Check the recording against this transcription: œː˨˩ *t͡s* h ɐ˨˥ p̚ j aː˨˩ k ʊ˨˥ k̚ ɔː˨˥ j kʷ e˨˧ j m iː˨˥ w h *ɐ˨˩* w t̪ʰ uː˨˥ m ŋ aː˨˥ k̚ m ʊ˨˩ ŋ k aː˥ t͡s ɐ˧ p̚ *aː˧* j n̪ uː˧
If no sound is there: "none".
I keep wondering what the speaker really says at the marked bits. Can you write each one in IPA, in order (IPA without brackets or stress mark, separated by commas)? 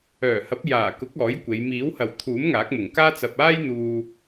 none, ɐ˨˩, aː˥